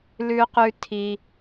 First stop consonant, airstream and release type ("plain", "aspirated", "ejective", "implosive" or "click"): plain